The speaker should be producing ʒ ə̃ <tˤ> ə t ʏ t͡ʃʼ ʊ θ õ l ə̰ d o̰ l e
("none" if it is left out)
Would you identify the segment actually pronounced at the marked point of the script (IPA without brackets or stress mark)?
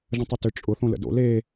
tˤ